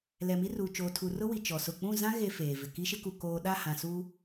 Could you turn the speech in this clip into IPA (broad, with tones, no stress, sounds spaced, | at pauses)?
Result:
l ɛ˨ m i˦ r uː˨ t͡ʃ oː˨ tʰ u˨ r ʊ˦ w i˨ t͡ʃ ɔ˨ s ʊ˦˨ k͡p ũ˦˨ z ã˦ ɣ e˨ f eː˨ v ɪ˨ k i˦ ʃ ɪ˦ k u˨ k oː˨ ɗ a˦˨ h ã˨ s uː˦